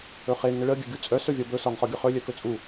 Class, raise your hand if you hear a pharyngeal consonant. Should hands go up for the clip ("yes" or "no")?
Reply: no